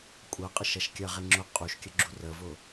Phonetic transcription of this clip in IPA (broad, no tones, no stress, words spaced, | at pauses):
kʷʼɐ qʼəʃɐʃkʲɐʁe ŋ͡ǁʊ qʼuʃkʲə ɡ͡ǁurəvʊ